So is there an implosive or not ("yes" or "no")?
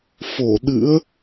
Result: yes